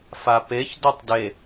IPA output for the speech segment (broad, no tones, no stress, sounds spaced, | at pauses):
f a p e ç d ɔ tˤ d e